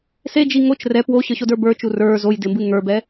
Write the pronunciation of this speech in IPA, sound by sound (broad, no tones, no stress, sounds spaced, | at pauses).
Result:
s e d͡ʒ i ŋ o t͡ʃ r ɛ p w o ɕ ə˞ ɕ o d ə˞ b ə˞ t͡ʃ u r ə˞ z o j d ɪ m b ɨ ŋ ə˞ b ɛ